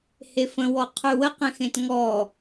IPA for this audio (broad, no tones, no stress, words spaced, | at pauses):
hefə̃wɔ qʰʉwəqẽxẽt ŋɔ